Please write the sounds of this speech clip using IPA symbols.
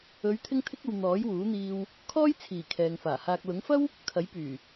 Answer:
ɵ˨˧ ɥ t̪ʰ ɪ˥ ŋ t̪ʰ ɪ˥ k̚ ɐ˧ w n̪ ɔː˨˥ j w uː˨˥ n̪ iː˧ w | kʰ ɔː˥ j t͡sʰ iː˨˩ kʰ ɛː˨ ŋ f aː˨˩ h aː˨ k̚ l ʊ˨˥ ŋ f ɐ˥ w | kʰ ɐ˨˥ j p yː˨˩

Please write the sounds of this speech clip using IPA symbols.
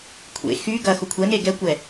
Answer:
kʷʰ ḛ x y ɡ ɐ x ʊ kʷʰ ɛ n e ɡ ɛ kʷ ɛ

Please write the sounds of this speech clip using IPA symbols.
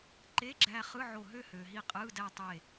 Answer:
ǃ e˧˥˧ ɡ͡ǁ æː˧ χ ɯ˧˥˧ ʕ o˧˩ ɦ ø˥˧ h øː˩ ɦ i˧ qʼ ɯː˧˥˧ d æ˥˧ tˤ e˧˩

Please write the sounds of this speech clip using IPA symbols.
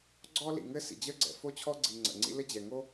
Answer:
ɡ͡ǀ ɔ˥ l ḭ˩ ŋ ɘ˥ s ḭ˩ d͡ʑ ə˥ ɡ͡ǀ ɛ̰˩ f o˥ t͡ɕʰ ɔ˥ ɡ͡ǀ i˩ ŋ͡ǀ ə̰˩ ŋ͡ǀ ḭ˥ l ɘ˥ d͡ʑ ɛ˩ ŋ o˥

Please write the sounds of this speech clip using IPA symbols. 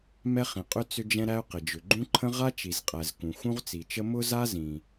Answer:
m ɛ˥ χ ĩ˩ qʼ ʏ˥ t͡s ʏ˥ d͡ʒ ɛ̃˥ ɾ æ˥ ʊ̯ q ɪ˩ d͡ʒ ʏ˩ ɡ͡ǃ ũ˥ ǃʰ ə̃˥ ʁ a˥ t͡ʃ i˩ z qʼ æ˩ z k ũ˩ x ũ˥ ʁ t͡s i˩ t͡ʃ ə˥ m ʊ˥ z a˥ z ĩ˩

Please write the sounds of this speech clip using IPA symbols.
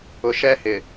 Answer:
ʊ˨ ʃ ɛ˦ h ɪ˨

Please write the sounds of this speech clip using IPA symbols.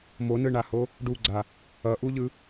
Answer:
m o n ɯ ɳ a h o | ɖ u ɡ͡ǀ a | ʌ ʔ u ʎ ɯ

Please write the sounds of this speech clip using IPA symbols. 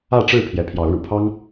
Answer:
ä˥˨ ʈ͡ʂ ɻ̩˥˨ pʰ j ɛ˨˦ pʰ j ɑ˨˦ ʊ̯ ɻ ṵ˨˩ pʰ ɑ˦ ŋ

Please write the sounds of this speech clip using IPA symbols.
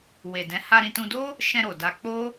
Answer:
w e˨ d ɛ̃˨˦ h a˧ ɾ ĩ˧ t ũ˧ d o˦ | ʃ ɛ̃˧ ɾ o˨ d a˧ k͡p o˦

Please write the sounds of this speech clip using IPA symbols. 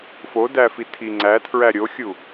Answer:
f o d æ f i tʰ i ŋ͡ǀ æ tʰ ɹ æ ɾʲ o xʲ u

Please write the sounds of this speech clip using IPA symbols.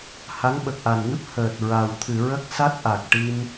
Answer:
h a˧˥ ŋ ɓ ə˨˩ k̚ ʔ a˨˩ n ŋ ɨ˦˥ p̚ h əː˨˩ t̚ ɹ a˨˩ w t̪ʰ ɨ˨˩˨ ɹ ə˦˥ k̚ s a˦˥ t̚ ʔ a˨˩ k̚ ʈ i˧ m

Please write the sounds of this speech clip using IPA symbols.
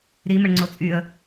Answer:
ɾ i m ə ɳ ŋ͡ǀ o t͡sʼ y ə̯

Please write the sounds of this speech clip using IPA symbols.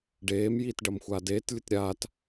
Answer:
ɖ eː m j iː t ɖ ɐ m xʷ aː d eː t lʲ ɨ t ɾʲ aː t

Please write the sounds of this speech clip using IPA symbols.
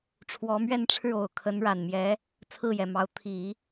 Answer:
ʈ͡ʂʰ w ɔ˧˥ m ɥ ɛ˥˧ n ʈ͡ʂʰ ɻ̩˥˩ o˨˩ ʊ̯ kʰ ə˧˥ n ɻ a˨˩ n m j ɛ˧˥ | t͡sʰ ɹ̩˥˩ j ɛ˨˩ m ɑ˧˥ ʊ̯ t̪ʰ i˨˩˦

